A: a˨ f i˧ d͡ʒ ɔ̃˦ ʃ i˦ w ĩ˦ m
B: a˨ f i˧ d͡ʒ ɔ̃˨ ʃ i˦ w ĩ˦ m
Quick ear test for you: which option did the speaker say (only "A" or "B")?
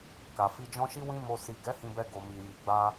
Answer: A